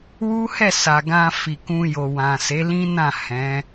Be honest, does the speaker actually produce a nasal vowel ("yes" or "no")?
yes